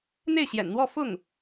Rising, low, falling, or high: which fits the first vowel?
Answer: falling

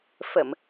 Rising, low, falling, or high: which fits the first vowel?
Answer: low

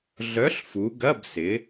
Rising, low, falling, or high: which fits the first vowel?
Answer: rising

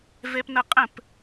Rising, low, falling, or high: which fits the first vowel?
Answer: high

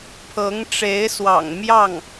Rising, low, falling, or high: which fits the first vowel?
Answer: rising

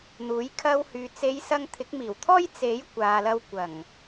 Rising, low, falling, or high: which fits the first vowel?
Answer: rising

